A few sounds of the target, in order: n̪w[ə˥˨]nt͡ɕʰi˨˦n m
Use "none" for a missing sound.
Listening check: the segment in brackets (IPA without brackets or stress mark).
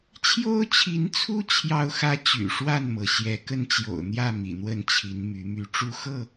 ə˥˨